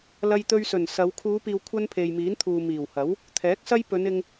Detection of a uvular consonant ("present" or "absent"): absent